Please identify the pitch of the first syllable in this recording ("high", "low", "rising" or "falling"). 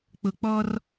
low